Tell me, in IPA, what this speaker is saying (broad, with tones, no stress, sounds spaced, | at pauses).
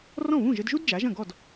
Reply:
r ɔ̃˥˩ β ũ˥˩ ʒ ɘ˧ d ʒ u˥ d d͡ʒ a˩˥ ʒ ɐ̃˥˩ ɡ ɔ˥˩ d